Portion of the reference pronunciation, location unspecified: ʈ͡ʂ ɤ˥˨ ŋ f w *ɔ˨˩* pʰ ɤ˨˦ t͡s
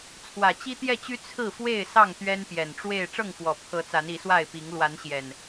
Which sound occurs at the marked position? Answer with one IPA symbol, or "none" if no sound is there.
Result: ɔ˨˩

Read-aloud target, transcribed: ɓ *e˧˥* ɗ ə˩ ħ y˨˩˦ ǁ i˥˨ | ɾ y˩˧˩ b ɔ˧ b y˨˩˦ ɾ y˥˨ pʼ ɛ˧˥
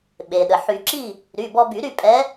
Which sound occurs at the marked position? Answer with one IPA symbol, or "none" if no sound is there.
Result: e˩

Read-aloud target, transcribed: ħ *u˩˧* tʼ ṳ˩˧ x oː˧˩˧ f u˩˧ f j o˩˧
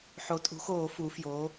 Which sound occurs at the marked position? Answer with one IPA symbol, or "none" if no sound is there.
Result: o˩˧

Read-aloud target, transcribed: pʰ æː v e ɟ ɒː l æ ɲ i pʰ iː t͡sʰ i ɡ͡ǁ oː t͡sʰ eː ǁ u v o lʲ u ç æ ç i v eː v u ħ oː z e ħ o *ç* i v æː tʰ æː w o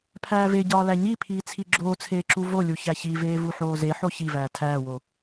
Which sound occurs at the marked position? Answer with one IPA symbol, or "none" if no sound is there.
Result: ç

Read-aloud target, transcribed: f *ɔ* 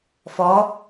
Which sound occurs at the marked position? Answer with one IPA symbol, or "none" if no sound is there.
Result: ɔ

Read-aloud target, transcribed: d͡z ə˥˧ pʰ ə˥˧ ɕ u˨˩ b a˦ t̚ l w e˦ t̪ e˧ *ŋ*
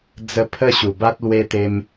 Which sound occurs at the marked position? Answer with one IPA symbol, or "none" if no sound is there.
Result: m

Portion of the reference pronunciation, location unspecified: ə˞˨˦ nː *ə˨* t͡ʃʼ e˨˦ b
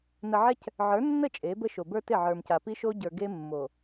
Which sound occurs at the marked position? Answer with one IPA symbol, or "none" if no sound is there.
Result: ə˦˨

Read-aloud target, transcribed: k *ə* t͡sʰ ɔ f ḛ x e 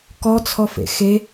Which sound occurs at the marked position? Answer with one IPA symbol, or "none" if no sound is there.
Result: ɔ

